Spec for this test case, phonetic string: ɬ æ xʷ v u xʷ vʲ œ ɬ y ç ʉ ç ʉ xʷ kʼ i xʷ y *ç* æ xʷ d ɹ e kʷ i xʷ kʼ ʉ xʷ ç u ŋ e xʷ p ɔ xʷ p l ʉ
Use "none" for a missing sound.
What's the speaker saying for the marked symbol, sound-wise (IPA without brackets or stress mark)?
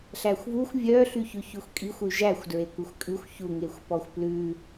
ʒ